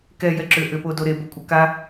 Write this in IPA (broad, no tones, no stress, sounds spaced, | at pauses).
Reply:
k ɛ j ɛ ǁ ʏ ʔ ʏ p o d o ɾ e b o kʷʼ ə k a